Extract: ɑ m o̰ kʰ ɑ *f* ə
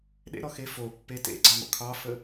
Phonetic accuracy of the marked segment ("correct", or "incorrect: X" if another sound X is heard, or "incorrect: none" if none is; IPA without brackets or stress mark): correct